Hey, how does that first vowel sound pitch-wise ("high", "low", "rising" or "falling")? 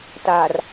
low